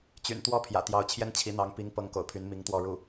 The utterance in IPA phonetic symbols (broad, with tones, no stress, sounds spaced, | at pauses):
t͡ɕ y̰˨˩ n t̪ w ɔ˥ pʰ j ä̰˨˩ t̪ j ɑ˧˥ ʊ̯ t͡ɕʰ j ɛ˥ n t͡ɕʰ i˧˥ n̪ ɑ˧˥ ŋ p i˧˥ ŋ p ɤ˧˥ ŋ k o̰˨˩ ʊ̯ pʰ y˧˥ n m i˧˥ ŋ t̪ w ɔ˥˧ ɻ u˥˩